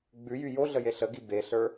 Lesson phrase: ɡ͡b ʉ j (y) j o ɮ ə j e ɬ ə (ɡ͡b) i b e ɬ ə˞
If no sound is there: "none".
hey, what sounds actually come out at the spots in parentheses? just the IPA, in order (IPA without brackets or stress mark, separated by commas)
y, ɡ